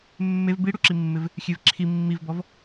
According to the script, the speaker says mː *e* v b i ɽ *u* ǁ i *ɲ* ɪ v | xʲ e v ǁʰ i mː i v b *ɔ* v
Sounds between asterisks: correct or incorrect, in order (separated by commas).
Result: correct, correct, incorrect, correct